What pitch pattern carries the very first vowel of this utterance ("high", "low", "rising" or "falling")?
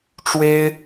high